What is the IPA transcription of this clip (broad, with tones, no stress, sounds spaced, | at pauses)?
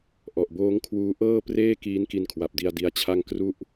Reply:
ʔ ɔ˨˩ ʔ b oː˦˥ ŋ kʰ w uː˦˥ ʔ ɤː˥˩ p r eː˥˩ k iː˦˥ n k i˧ n kʰ w a˨˩ p̚ d i˧ a̯ d i˦˥ a̯ t͡ɕʰ a˥˩ ŋ k r u˥˩ ʔ